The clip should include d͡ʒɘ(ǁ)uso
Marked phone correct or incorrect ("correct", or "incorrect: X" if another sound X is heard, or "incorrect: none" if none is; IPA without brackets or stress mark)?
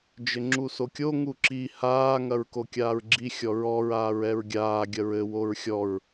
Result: incorrect: ŋ͡ǁ